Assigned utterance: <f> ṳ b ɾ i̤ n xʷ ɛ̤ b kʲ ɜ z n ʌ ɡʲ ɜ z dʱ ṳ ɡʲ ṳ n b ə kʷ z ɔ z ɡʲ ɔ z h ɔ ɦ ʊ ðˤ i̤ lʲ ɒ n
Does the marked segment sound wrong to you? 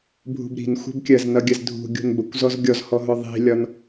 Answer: yes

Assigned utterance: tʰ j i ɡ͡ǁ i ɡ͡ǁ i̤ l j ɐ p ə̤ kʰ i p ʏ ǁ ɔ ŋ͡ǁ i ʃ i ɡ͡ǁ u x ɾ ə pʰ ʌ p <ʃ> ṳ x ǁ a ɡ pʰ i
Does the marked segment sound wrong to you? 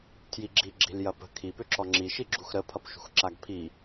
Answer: no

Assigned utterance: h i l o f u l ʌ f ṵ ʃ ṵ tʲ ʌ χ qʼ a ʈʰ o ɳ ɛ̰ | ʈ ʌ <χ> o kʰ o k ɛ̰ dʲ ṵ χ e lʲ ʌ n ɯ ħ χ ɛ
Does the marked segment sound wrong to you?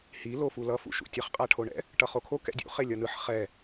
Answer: no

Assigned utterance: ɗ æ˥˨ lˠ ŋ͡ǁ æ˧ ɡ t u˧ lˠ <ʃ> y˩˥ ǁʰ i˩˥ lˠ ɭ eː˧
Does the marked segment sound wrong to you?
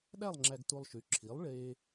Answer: no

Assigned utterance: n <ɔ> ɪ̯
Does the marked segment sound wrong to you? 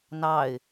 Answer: yes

